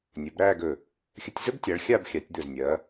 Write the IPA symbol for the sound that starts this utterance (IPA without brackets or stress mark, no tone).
nʲ